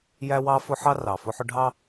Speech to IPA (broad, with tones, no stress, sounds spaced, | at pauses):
j æ˦ w ɑ˦ f ʊ˦ ħ ɑ˦ r ɑ˨ f ʊ˦ ħ ʊ˦ ɖʱ ɑ˦